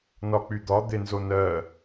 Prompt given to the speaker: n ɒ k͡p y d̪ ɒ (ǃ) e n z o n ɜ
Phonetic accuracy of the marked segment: incorrect: d̪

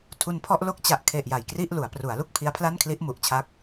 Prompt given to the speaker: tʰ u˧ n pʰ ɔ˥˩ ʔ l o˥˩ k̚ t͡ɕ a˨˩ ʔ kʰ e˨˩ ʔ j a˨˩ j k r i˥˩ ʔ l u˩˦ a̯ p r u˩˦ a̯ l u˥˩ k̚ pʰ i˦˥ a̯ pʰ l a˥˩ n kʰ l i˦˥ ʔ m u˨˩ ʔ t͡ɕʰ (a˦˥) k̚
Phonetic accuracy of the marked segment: correct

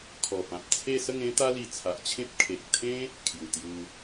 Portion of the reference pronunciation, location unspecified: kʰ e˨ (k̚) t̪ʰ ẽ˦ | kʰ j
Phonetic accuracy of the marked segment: correct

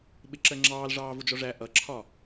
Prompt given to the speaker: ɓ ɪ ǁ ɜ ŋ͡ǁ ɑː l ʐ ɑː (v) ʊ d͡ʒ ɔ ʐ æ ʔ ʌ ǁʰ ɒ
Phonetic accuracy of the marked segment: correct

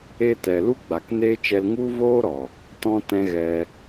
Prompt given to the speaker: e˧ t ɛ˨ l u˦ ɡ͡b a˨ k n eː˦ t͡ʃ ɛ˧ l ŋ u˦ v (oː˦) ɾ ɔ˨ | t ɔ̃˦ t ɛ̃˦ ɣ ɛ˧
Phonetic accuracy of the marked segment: correct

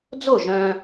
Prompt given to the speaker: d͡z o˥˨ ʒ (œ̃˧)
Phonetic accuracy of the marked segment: correct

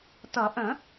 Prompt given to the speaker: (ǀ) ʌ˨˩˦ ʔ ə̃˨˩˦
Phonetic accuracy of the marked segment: incorrect: t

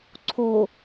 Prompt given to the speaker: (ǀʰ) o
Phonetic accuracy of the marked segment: correct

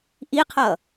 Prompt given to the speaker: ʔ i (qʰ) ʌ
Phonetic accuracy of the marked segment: correct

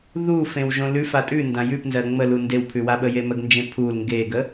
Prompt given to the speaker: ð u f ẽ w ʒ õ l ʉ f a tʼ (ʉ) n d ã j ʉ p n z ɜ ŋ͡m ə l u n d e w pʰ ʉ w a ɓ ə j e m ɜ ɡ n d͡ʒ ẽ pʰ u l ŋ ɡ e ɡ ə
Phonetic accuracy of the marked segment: correct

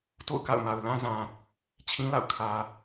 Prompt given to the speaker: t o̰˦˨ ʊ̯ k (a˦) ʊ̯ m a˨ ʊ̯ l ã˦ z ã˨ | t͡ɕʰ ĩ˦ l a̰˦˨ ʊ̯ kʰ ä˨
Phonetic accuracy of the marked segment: incorrect: a̰˦˨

